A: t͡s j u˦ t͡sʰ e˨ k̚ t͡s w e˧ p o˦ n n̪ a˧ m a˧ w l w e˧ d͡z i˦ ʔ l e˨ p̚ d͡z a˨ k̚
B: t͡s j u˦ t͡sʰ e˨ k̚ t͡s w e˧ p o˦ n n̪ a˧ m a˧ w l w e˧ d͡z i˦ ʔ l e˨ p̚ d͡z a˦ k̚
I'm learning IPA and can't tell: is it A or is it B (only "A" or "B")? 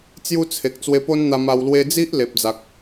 A